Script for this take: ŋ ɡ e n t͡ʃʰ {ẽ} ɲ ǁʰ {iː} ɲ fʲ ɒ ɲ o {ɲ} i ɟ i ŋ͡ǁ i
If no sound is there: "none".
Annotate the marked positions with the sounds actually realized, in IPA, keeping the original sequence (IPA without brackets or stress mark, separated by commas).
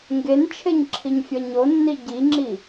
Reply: e, i, nː